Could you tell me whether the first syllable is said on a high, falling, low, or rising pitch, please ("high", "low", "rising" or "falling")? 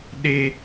high